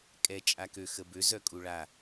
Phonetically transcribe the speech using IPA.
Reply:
kʼ ɛ t͡ʃʼ a k ø x ə b ø z œ kʼ u ɭ a

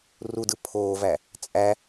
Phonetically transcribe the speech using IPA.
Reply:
r u d ɯ pʰ oː v æ | t͡sʼ æ

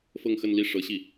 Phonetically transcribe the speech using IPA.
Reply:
f ɤ˥˧ ŋ x ə˥˧ n l i˥˩ ʂ ɤ˧˥ ɕ i˥˩

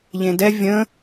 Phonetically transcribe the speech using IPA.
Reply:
ʎ ẽ d ɛ vʲ ə̃

